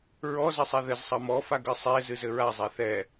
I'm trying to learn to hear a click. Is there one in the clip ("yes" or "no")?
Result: no